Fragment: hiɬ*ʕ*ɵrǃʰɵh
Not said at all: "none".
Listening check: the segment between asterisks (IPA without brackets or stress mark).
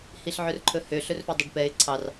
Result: ʕ